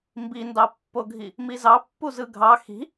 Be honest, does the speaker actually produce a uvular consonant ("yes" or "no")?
no